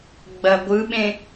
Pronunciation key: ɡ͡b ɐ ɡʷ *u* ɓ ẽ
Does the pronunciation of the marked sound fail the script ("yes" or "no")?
yes